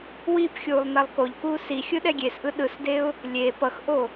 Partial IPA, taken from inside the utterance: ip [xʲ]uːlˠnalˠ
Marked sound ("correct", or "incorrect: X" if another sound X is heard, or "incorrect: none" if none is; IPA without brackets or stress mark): correct